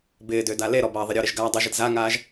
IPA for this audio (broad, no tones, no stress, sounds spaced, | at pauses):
b ɪː d ʏː d a l e ɾ ɔ b ɐː ðˤ ɪ ɾʲ ɔ ɾ ɪ ʒ ɡ aː dˤ ʏ ʒ ɪ d z a ŋ aː ʒ